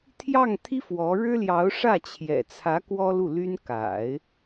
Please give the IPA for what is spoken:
t̪ʰ j ɑ˥˩ ŋ t̪ʰ i˥ f w ɔ˧˥ ɻ ɻ̩˥ l j ɑ˧˥ ʊ̯ ʂ ä˥˩ t͡ɕʰ j ɛ̰˨˩ t͡sʰ ä˧˥ k w ɔ˥ l u˥˩ l y˥ n k a̰˨˩˦ ɪ̯

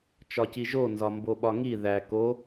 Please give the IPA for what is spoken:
t͡ʃ ɒ c i ʒ o n z ɒ m b o ɓ ɒ ŋ i ð æ k o

